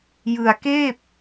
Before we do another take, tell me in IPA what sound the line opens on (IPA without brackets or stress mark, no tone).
j